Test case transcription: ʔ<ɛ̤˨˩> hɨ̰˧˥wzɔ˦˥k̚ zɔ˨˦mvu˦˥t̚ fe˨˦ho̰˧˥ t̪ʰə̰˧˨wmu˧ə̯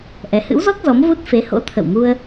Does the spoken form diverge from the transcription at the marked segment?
yes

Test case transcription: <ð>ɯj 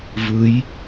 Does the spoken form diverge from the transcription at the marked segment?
yes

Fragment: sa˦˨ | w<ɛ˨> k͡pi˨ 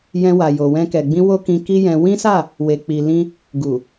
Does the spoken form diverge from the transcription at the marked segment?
yes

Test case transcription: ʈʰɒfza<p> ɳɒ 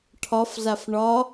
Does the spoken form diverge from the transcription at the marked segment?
yes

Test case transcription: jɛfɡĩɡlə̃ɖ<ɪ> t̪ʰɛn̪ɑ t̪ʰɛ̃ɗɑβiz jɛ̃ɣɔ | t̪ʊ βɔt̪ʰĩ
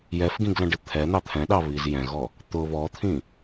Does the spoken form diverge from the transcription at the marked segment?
no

